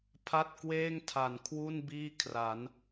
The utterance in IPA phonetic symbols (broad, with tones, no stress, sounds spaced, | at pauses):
pʰ a˥˩ t̚ k w eː˥˩ ŋ tʰ a˩˦ n kʰ w u˥˩ n b iː˥˩ kʰ r a˩˦ n